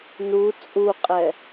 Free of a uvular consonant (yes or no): no